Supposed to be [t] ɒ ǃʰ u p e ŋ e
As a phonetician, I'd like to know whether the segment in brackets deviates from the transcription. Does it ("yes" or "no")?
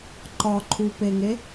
yes